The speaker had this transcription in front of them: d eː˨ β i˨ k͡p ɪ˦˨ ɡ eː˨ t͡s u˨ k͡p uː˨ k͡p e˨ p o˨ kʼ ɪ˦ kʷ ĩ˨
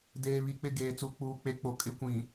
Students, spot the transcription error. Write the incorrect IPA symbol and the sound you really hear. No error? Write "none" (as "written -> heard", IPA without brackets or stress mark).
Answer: p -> k͡p